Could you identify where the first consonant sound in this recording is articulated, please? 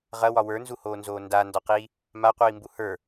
uvular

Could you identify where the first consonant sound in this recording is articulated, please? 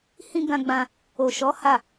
glottal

